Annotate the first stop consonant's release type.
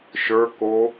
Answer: plain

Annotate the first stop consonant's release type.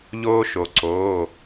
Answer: click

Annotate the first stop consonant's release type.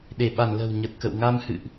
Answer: implosive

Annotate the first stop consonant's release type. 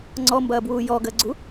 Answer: click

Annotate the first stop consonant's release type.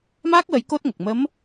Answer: plain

